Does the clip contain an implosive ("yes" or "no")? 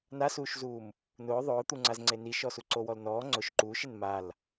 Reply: no